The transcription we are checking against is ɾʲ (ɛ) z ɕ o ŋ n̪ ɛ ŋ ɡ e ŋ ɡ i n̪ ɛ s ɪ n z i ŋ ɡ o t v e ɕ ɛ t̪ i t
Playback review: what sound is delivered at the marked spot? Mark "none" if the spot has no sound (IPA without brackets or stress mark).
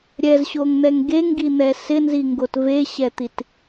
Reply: ɛ